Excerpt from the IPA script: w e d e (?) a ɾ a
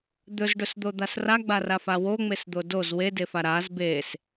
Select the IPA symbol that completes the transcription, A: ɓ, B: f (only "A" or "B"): B